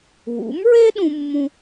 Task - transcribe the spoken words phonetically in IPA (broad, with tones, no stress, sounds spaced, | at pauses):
w ṵ˩˥ m ɹ e˥ ɗ ũ˧ mː ũ˧